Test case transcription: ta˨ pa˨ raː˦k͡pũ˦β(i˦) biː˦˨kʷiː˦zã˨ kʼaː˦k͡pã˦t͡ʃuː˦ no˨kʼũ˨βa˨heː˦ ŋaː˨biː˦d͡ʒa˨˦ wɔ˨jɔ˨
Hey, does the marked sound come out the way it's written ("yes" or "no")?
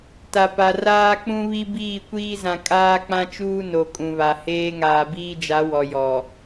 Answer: yes